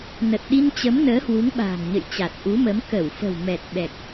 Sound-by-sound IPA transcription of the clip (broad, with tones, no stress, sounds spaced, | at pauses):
n ə˨˩ t̚ ɗ i˧ n t͡ɕ ə˨˦ m n əː˨˦ h w u˨˦ ŋ ɓ a̤ː˨˩ ŋ ɲ ə̰˧˨ j t͡ɕ a˨˩ t̚ ʔ u˨˦ m ə˨˦ m k ə˧˩ w f ə̤˨˩ w m ɛ˨˩ t̚ ɓ ɛ˨˩ k̚